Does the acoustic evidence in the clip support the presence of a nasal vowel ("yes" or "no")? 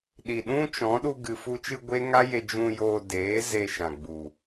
yes